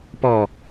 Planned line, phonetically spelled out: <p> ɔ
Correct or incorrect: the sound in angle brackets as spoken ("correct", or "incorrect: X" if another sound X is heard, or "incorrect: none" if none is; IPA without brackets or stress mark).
correct